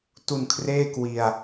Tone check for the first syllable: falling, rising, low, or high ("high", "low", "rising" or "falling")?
low